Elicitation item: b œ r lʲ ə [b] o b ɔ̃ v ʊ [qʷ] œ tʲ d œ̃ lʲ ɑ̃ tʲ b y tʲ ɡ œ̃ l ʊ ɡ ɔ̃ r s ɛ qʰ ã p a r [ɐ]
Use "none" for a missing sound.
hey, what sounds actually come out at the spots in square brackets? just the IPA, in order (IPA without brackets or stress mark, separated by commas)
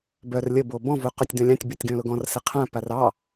b, q, ɑ